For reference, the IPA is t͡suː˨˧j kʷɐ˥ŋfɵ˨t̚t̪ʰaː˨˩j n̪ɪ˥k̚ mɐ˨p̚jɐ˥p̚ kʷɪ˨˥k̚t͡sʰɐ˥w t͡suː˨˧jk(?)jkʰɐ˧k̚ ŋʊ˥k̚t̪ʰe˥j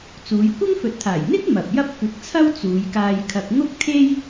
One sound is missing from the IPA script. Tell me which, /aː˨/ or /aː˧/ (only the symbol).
aː˧